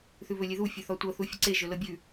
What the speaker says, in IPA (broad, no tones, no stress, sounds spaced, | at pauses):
θ ʉ β ɵ lʲ e ð u fʲ ɵ θ ɔ tʷ ɤ θ u fʲ ə ǀ e ʒ ɵ l ɤ bʲ ʉ